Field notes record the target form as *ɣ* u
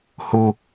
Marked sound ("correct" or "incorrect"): incorrect